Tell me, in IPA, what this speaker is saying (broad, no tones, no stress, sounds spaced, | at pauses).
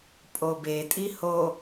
pʼ o b e tʼ i h o